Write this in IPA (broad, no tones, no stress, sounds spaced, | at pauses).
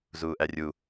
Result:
z uː ʔ æ rʲ u